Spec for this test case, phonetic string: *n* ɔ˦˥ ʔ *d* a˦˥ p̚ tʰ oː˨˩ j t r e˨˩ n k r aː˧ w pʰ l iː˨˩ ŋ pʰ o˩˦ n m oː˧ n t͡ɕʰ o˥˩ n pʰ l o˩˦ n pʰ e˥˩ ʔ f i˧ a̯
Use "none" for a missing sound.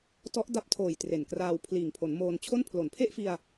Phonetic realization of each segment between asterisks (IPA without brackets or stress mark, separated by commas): t, d